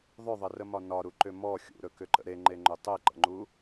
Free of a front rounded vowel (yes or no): no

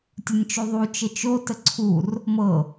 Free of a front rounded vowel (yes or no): yes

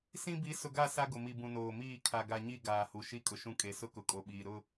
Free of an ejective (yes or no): no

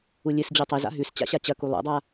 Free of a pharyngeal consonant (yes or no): yes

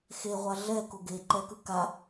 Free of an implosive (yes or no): yes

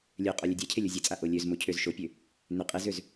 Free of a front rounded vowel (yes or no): no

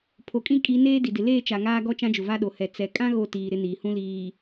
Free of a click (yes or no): yes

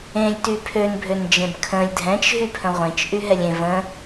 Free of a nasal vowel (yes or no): no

